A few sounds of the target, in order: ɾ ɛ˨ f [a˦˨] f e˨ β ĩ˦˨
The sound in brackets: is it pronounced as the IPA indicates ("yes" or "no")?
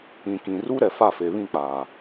yes